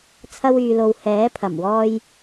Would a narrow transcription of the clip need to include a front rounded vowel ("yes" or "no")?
yes